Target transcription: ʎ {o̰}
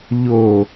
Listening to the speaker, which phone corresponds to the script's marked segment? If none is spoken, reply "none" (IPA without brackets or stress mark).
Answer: o